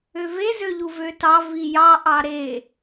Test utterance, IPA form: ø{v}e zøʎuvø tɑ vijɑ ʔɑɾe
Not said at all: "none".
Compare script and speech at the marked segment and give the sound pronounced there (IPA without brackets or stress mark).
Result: v